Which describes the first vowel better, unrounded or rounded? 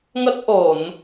unrounded